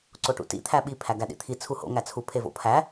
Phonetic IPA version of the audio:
ǀ o ʈ ṵ t ḭ t̪ʰ æ ɓ i pʰ æ ɡ æ ɗ ḭ t̪ʰ i t͡sʰ u h o̰ ŋ æ t͡sʰ u pʰ e v o̰ pʰ æ

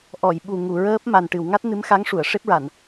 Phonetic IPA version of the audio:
ʔ ɔ˨˩˨ j ɓ u˨˩ ŋ u˨˩˨ ɹ əː˦˥ p̚ m a˨˩ n ʈ ɨ˨˩˨ w ŋ a˦˥ t̚ n ɨ˧˥ m x a˧˥ ŋ ʂ u˨˩˨ ə̯ ʂ e˦˥ p̚ ɹ a˨˩˨ n

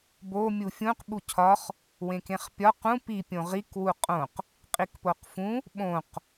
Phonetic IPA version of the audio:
b o mʲ u fʲ ũ q ɓ u cʰ ɒ χ | w ẽ k ẽ χ pʲ ɒ q ũ p i pʲ õ ʁ i k w u qʼ õ q | qʼ i k p o q f ũ | ɓ õ q

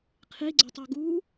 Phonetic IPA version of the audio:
qʰ i ɡ͡ǀ y tˤ o ɡ u

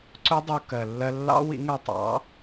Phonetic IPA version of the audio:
ǀ ʊ˦˥ dˤ u˧ k ɜ˩ lː ɜ˧ lː ɑ̰˦˥ w ḭ˩˥ ŋ ɜ˧ tˤ ɑ̰˩˥

